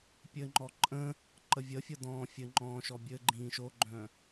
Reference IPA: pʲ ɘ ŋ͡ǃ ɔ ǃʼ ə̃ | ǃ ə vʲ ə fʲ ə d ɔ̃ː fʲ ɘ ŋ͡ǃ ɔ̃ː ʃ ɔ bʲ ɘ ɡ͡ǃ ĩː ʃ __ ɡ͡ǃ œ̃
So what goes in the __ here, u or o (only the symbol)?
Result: o